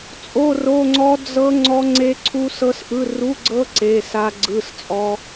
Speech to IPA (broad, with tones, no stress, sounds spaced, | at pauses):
t͡sʼ o˧˥˧ r o˧˥˧ ŋ͡ǀ ɔ˦˥ d͡z ɤ˦˥ ŋ͡ǀ ɔ˦˥ ŋ͡ǀ e˦˥ ǀʰ u˦˥ s ɤ˦˥ s ʔ ɯ˧˥˧ r u˧˥˧ ɡ͡ǀ ɤ˦˥ ǀ e˧˥˧ s a˦˥ ɡ͡ǀ ɯ˧˥˧ s t͡sʼ ɔ˦˥